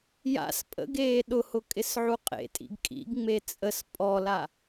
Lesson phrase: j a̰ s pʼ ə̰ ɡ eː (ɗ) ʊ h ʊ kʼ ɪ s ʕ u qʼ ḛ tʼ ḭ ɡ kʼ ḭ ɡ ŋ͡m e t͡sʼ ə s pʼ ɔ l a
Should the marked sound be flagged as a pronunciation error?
no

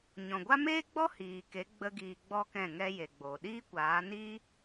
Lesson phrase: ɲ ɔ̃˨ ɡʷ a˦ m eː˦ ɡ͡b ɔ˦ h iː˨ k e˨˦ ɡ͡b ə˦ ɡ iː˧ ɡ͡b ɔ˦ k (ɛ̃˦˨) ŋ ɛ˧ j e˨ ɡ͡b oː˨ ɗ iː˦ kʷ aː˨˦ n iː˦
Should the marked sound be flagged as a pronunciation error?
no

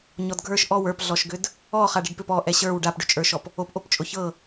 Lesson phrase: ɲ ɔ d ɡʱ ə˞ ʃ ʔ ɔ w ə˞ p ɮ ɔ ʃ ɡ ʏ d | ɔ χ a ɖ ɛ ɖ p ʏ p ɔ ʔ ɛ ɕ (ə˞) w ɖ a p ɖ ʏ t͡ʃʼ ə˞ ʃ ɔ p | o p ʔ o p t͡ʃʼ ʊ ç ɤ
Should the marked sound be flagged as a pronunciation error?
no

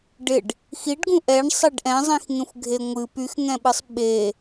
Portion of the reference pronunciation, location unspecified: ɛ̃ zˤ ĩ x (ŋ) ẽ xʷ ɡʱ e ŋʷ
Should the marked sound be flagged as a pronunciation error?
no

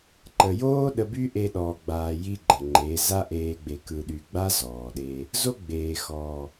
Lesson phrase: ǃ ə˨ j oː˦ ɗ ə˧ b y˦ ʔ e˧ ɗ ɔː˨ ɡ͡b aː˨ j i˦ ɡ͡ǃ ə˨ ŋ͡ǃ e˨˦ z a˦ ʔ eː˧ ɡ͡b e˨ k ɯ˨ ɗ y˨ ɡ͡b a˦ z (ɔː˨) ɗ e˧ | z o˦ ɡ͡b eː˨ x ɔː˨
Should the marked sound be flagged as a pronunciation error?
no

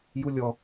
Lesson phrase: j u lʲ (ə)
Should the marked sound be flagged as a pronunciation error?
yes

